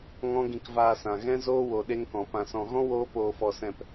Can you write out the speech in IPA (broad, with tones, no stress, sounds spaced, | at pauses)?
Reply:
ŋ ɔ̃˦ ɡ ĩ˧ k v aː˧ s ã˨ ɣ ɛ̃˦ z oː˦ w o˧ ɗ e˦ ŋ k ɔ̃˨ p ã˨ s ɔ̃˨ ɣ ɔ̃˦ w oː˦ p oː˧ f ɔ˧ s ɛ̃˧ p